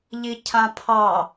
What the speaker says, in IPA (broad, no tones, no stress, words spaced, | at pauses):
ʎicʰãpʰɑ